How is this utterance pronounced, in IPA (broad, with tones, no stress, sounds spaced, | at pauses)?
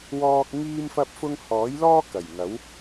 w ɔː˧ k̚ ŋ iː˥ m f ɐ˥ p̚ f ʊ˥ ŋ h ɔː˨˥ j l ɔː˥ k ɐ˨˩ j ŋ ɐ˨˥ w